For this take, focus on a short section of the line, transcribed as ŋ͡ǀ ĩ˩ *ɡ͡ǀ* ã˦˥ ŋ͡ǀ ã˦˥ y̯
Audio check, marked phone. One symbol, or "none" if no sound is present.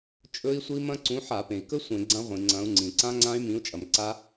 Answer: ǀ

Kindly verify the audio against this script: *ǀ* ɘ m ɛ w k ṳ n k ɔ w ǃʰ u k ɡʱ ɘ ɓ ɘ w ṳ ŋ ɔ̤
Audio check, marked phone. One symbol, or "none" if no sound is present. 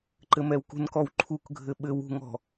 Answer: ǃ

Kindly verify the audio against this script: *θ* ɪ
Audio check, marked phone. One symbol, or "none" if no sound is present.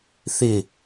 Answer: θ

